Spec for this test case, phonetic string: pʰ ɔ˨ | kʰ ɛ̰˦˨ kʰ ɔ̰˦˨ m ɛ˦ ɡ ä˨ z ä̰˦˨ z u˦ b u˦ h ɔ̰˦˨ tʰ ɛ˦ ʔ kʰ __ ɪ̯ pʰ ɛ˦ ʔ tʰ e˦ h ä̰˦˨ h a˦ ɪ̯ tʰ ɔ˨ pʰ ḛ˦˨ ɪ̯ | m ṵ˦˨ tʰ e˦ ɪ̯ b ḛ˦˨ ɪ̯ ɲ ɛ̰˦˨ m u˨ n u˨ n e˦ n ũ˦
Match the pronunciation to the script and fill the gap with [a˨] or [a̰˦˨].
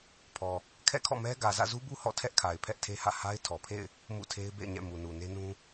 a˨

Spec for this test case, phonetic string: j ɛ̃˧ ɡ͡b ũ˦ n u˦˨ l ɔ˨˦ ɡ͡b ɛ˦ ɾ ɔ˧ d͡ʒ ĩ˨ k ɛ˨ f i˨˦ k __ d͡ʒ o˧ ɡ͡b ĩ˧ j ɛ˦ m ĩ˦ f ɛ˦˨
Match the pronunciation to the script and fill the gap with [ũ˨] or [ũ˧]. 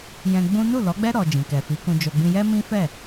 ũ˧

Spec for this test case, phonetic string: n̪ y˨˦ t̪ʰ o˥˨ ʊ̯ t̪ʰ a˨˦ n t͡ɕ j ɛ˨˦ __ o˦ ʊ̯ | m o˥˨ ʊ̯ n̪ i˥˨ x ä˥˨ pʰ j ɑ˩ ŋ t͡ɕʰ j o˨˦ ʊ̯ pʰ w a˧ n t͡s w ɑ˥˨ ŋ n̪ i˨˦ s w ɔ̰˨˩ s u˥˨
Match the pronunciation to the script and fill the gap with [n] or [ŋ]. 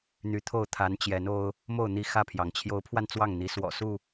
n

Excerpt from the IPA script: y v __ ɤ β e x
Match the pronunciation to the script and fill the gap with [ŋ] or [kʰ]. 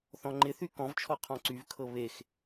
kʰ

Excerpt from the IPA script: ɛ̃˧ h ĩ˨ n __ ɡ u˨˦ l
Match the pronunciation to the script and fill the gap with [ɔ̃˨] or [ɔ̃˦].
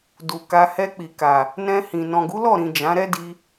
ɔ̃˨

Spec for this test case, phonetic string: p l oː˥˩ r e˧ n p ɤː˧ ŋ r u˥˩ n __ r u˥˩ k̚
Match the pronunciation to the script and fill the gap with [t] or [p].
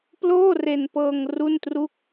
t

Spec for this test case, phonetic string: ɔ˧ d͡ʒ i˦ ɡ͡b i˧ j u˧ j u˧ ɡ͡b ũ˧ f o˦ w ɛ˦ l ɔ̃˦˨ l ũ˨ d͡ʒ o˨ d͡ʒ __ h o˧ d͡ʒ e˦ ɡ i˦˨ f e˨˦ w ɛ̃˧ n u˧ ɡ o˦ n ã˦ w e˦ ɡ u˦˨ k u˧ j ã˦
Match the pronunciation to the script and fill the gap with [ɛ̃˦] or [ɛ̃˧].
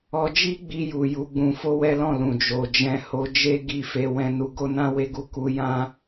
ɛ̃˧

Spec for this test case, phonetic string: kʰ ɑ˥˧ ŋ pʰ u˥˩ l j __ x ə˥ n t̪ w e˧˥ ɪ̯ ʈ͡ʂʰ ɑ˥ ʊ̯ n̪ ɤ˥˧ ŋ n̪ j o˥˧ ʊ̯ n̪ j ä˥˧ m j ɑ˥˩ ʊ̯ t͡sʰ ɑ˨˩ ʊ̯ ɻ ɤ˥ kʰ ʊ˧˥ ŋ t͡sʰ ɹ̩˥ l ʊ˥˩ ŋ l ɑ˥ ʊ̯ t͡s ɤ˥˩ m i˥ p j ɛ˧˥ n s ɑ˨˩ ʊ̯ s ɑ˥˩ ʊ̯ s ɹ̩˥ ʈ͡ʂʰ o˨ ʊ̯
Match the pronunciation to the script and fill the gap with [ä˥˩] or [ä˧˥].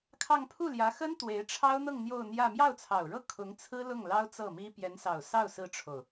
ä˧˥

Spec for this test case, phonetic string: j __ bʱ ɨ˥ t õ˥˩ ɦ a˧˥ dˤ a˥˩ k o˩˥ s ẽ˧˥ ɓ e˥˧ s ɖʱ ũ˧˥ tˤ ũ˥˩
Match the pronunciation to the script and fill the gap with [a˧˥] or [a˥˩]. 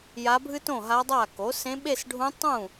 a˧˥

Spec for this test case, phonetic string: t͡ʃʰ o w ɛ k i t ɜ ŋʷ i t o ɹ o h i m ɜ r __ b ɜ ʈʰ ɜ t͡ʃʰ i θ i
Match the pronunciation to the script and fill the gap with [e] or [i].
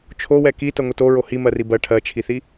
i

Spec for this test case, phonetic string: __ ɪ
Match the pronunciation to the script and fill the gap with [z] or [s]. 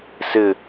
s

